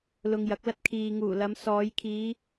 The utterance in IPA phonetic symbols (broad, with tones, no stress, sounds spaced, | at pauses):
l ʊ˧ ŋ j ɐ˨˥ k̚ l ɐ˥ t̚ kʰ iː˨ ŋ uː˨˩ l ɐ˨˧ m s ɔː˨˧ j kʰ iː˨˧